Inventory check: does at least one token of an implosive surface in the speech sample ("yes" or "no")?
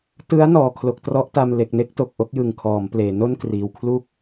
no